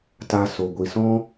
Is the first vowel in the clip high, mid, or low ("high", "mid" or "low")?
low